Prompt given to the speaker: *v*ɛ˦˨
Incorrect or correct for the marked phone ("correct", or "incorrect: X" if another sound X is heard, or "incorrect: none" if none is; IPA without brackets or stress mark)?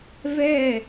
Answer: correct